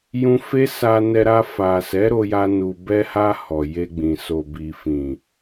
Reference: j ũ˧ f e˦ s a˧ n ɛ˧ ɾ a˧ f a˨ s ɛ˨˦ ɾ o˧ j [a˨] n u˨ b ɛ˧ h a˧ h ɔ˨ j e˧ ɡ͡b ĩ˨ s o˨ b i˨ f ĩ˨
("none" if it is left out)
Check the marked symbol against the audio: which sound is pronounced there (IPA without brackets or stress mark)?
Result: a˧